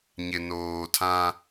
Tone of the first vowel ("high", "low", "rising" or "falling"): low